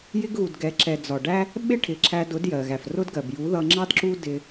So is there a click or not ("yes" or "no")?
yes